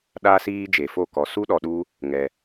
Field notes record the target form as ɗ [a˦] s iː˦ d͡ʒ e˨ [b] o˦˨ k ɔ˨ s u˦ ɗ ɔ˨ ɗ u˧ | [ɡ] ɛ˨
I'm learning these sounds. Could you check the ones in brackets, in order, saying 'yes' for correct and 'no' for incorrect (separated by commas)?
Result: yes, no, no